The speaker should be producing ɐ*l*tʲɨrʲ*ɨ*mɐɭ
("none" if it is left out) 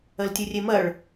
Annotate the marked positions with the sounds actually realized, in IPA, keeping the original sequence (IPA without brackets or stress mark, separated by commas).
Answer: l, e